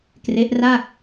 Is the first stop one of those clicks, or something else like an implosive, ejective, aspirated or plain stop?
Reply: plain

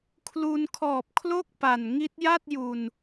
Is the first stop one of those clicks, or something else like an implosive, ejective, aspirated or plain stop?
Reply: aspirated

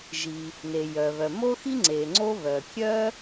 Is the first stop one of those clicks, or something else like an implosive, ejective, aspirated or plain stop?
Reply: click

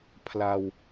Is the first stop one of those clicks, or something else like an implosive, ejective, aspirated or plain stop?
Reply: aspirated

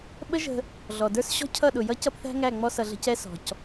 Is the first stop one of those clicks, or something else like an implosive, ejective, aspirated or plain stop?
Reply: implosive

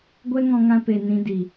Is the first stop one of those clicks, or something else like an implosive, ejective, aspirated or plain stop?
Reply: plain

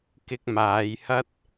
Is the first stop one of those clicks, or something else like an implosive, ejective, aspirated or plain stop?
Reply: plain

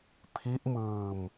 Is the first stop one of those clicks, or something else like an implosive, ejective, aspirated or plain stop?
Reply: aspirated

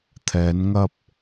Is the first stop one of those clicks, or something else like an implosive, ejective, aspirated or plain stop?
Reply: aspirated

